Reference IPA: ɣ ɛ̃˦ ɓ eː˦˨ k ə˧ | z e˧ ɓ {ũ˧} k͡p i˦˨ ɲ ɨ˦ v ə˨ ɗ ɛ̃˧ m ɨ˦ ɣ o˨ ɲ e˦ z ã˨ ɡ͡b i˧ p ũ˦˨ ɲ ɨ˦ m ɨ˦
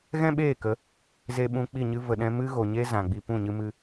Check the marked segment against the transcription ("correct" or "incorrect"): correct